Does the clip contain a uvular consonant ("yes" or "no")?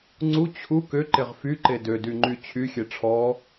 yes